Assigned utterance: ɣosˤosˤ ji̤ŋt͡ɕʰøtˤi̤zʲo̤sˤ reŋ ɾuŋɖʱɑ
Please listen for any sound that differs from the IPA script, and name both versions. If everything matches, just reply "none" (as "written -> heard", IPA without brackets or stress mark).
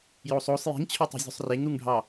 ɣ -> j